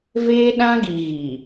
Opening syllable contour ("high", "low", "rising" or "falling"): high